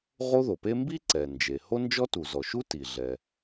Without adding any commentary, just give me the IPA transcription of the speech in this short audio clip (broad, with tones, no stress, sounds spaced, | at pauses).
ʁ o˥ ð o˩ p e˥ m b i˥ ǀ ɛ˩ n d͡ʒ e˩ h o˥ n d͡ʒ ɔ˥ t u˩ z ɔ˩ ʃ u˥ t i˩ ɮ ɛ˩